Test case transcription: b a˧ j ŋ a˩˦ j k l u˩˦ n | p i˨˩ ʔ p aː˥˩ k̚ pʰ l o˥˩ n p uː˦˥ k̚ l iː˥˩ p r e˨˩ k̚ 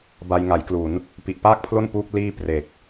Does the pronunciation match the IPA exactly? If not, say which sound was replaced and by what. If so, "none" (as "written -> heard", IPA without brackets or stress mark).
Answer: none